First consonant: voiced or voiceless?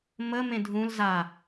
voiced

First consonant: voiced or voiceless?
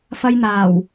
voiceless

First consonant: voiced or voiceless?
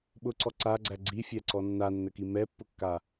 voiced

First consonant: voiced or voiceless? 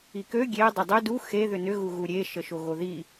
voiceless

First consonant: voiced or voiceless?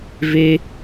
voiced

